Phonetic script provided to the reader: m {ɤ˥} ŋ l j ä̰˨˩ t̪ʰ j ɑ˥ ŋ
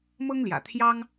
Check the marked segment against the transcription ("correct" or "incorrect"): correct